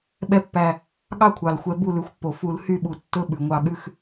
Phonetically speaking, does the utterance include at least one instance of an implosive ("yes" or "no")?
yes